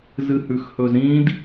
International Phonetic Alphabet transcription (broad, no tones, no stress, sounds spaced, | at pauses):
z ɨ h ʉ x h ɵ z ɾ ĩː d